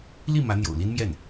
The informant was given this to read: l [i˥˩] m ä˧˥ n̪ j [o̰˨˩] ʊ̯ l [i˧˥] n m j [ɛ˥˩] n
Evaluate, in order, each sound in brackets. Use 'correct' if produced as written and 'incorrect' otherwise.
correct, correct, incorrect, correct

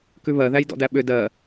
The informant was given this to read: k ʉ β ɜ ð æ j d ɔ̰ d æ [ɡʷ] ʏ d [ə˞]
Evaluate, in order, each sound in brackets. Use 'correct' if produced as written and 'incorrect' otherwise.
incorrect, incorrect

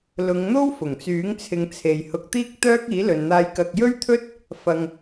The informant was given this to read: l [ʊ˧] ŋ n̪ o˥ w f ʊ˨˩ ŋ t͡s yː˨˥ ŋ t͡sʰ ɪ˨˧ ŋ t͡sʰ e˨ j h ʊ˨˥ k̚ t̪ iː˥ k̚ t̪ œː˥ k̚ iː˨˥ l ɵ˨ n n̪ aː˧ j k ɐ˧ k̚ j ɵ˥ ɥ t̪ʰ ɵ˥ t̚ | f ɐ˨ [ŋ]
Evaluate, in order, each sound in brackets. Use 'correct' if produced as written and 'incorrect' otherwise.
incorrect, correct

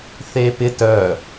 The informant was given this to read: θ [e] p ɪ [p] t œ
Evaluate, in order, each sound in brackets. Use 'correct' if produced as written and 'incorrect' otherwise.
correct, incorrect

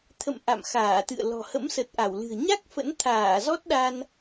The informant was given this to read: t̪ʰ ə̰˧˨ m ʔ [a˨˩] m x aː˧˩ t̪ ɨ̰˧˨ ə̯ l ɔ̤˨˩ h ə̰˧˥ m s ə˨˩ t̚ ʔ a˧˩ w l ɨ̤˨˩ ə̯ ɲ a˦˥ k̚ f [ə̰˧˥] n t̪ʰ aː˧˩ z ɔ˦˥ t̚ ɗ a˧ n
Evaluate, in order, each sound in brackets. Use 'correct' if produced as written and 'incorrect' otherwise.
incorrect, correct

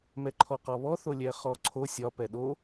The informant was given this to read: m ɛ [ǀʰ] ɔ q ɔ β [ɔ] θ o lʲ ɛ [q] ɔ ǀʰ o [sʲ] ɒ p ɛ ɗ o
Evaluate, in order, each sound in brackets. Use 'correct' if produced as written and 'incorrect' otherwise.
incorrect, correct, incorrect, correct

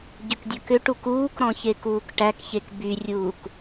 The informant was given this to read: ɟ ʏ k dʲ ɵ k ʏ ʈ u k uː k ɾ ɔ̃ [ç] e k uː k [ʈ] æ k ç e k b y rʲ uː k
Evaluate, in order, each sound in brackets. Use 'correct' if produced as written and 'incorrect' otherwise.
correct, correct

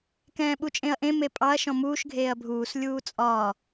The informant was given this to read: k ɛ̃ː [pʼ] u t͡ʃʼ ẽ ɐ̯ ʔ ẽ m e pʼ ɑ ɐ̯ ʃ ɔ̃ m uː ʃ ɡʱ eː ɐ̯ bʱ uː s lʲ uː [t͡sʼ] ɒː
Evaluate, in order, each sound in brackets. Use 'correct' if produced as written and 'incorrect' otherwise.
incorrect, correct

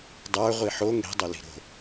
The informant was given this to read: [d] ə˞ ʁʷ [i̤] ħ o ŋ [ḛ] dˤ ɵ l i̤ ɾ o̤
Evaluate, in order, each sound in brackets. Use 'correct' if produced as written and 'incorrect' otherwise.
incorrect, incorrect, incorrect

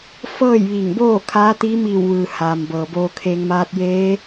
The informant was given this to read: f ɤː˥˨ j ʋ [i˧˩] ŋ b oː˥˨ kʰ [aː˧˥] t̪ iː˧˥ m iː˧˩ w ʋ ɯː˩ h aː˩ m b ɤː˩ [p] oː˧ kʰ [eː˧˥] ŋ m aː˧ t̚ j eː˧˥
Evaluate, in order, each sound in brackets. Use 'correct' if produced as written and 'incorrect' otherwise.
correct, correct, incorrect, incorrect

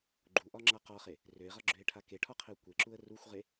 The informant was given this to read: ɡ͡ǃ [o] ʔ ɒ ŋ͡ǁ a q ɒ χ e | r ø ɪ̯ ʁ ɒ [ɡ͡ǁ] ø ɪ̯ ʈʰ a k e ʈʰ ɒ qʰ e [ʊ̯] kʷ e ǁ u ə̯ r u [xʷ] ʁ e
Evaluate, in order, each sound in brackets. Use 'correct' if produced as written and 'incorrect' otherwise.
incorrect, correct, correct, correct

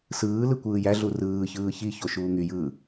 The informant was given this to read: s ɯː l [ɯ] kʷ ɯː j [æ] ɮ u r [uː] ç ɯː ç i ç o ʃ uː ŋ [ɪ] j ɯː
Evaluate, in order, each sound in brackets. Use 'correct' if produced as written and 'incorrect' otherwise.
correct, correct, incorrect, incorrect

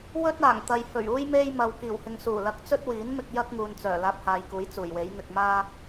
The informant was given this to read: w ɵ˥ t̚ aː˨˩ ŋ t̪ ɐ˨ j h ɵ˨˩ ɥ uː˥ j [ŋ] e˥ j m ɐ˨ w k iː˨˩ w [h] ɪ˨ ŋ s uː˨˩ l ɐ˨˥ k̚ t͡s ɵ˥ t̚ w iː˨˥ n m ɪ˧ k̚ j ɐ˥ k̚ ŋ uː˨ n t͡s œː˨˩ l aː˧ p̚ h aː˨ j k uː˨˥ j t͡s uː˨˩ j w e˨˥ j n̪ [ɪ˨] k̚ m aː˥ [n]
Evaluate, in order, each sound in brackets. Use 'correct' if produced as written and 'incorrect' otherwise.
incorrect, correct, correct, incorrect

